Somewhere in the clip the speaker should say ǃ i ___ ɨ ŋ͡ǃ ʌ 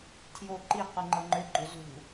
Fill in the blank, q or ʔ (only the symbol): q